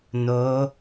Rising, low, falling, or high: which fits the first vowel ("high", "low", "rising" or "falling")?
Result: rising